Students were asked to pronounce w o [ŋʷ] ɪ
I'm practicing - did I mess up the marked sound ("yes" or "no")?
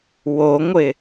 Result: no